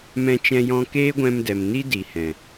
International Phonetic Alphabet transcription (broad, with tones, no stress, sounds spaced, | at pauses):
m ɛ̃˧ t͡ʃ ɛ̃˧ j ɔ̃˧ k eː˦ ɡʷ ɛ̃˧ m d ɛ˨ m n i˦ d i˨ h ɛ̃˨